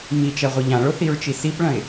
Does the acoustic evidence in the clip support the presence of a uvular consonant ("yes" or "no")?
yes